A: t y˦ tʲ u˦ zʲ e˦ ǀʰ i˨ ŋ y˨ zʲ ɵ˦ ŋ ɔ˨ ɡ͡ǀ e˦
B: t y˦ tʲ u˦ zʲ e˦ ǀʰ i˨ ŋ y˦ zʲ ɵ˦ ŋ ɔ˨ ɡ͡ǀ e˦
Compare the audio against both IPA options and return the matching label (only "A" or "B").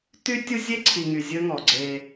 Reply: A